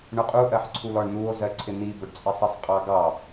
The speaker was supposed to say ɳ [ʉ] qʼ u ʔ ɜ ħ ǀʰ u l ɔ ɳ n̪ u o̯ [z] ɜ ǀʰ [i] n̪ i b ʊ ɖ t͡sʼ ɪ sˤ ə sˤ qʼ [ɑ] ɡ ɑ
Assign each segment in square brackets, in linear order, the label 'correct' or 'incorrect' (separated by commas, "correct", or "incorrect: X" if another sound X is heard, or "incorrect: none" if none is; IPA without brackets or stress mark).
incorrect: ʊ, correct, incorrect: ɪ, correct